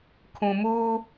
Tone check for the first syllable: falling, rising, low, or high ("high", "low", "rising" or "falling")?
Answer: low